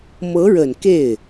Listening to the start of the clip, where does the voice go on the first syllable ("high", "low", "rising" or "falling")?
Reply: rising